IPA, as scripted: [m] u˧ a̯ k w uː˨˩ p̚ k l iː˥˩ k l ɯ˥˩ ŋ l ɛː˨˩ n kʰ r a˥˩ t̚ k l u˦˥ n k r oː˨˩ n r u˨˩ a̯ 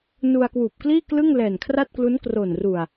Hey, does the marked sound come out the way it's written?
no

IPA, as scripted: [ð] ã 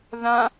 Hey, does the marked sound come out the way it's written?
yes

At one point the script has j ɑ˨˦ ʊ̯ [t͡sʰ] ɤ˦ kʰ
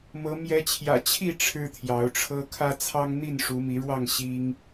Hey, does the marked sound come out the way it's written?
no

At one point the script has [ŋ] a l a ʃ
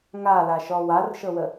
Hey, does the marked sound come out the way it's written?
yes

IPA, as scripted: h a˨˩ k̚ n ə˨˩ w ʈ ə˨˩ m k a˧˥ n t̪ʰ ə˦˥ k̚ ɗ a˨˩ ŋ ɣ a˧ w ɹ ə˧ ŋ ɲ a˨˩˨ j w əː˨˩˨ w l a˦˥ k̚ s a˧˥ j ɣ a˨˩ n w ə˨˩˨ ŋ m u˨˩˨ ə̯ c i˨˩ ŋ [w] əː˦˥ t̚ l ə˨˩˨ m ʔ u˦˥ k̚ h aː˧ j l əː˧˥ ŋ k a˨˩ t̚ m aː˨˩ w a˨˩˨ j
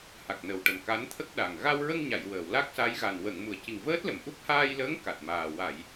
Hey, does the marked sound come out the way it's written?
no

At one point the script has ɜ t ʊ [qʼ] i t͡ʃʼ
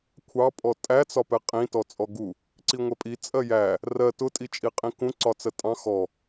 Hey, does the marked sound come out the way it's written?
no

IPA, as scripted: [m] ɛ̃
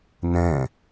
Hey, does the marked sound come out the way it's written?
no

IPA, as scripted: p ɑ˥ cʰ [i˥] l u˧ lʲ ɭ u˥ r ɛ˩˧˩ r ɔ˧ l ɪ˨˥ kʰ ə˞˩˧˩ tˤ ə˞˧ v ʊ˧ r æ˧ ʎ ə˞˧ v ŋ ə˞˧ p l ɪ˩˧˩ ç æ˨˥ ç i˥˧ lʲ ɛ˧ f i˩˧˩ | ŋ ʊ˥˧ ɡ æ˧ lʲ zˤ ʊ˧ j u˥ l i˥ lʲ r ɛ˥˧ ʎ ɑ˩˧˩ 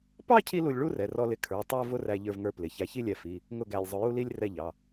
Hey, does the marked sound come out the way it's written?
yes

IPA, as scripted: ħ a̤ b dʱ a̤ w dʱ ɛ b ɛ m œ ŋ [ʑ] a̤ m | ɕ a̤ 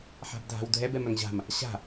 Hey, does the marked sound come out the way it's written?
yes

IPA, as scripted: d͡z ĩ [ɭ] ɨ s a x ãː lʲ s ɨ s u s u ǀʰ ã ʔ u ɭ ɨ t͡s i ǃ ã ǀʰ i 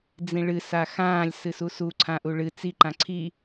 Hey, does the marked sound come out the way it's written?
yes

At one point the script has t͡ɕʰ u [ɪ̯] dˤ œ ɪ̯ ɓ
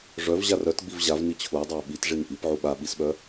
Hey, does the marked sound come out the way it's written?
yes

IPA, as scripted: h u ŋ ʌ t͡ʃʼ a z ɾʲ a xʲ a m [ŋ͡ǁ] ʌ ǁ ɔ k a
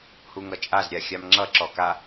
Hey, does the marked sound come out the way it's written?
yes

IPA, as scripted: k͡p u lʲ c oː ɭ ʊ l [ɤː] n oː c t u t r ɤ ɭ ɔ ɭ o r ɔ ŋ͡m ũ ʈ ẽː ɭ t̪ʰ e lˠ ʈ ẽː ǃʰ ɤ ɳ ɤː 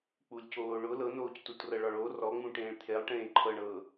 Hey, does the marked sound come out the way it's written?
no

